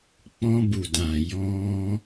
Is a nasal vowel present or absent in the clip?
present